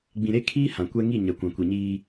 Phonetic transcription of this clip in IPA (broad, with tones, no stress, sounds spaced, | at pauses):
ɡ͡b ĩ˨ ɾ e˦ kʰ iː˦ h ã˨ kʷ ɛ˦ ŋ i˦˨ ɲ ɛ˨ kʷ ã˨ kʷ i˨ ɲ iː˦